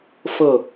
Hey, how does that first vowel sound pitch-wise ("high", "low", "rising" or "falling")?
falling